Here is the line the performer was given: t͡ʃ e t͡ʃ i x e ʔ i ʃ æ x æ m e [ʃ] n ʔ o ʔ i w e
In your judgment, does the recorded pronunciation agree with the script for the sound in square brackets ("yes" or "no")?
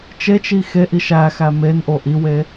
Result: no